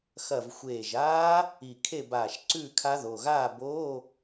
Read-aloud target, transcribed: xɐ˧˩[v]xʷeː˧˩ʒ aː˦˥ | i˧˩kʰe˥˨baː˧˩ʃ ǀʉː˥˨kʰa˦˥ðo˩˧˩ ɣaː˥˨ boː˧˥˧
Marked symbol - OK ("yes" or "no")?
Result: yes